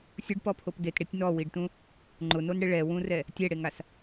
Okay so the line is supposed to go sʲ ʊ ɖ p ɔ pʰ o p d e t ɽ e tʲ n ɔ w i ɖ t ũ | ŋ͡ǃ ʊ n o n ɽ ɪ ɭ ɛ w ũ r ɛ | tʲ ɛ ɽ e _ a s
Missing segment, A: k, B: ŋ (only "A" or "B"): B